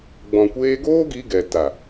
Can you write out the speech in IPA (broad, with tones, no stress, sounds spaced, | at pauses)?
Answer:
ɡ͡b ɔ̃˨ kʷ eː˧ ɡ oː˦ ɡ i˧ ɡ ɛ˨ t a˨